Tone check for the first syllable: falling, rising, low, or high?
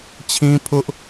high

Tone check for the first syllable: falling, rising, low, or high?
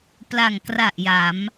low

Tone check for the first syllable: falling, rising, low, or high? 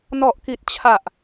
low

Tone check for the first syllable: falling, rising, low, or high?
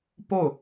falling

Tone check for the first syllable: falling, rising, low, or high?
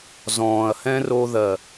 low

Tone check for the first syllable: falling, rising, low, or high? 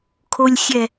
low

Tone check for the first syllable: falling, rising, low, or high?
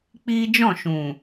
high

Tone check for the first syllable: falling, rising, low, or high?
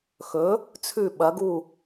rising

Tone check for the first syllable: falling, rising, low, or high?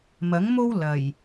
rising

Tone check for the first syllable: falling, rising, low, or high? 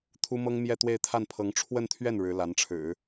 high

